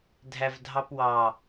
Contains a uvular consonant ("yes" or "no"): no